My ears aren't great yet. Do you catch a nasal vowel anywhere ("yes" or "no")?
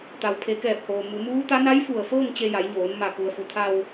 no